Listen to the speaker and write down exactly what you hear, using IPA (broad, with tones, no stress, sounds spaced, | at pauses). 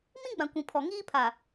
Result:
m ĩ˦ ɡ͡b ã˨ kʷ ĩ˨ pʰ ɔ˨ ŋ iː˦ pʰ aː˨